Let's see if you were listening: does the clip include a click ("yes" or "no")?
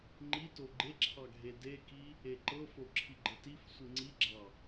yes